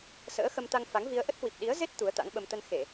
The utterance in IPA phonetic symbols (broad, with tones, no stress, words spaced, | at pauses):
sə̰ː˧˥xə˧mt̪a˧ŋfa˨˦ŋ vi˧ə̯ ʔə˦˥t̚hwi˨˩p̚ɗi˨˦ə̯ ze˦˥t̚ t̪u˨˦ə̯t̪a̰˧˥ŋɓə˧m t̪ə˧nxe˧˩˨